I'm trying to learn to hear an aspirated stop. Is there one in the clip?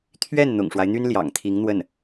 yes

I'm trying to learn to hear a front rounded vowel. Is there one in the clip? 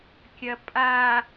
no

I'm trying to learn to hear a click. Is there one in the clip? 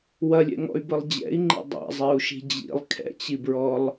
yes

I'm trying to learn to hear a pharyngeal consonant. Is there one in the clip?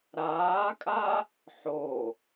yes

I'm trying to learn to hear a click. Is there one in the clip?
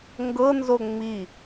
no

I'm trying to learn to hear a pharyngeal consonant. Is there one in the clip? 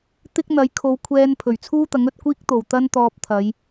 no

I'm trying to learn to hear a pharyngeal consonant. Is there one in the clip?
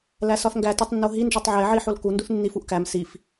yes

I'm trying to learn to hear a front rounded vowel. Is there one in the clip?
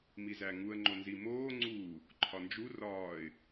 no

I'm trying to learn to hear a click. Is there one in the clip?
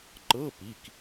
yes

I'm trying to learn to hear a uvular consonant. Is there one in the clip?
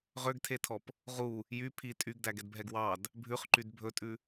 yes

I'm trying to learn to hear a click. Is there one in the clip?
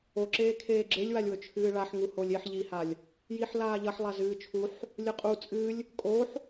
yes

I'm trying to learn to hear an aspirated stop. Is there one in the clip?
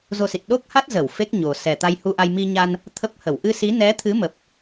yes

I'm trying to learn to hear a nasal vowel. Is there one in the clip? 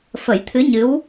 no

